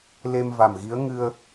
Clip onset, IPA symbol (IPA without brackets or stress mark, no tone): l